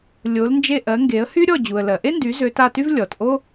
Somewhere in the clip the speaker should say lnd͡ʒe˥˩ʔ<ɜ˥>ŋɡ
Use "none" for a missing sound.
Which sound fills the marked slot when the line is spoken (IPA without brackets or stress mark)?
ɜ˩˥